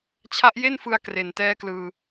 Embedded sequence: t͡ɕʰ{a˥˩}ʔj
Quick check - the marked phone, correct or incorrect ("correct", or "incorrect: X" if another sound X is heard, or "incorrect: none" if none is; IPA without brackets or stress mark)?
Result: incorrect: a˦˥